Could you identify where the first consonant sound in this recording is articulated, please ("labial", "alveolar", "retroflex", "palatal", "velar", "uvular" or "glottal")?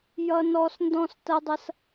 palatal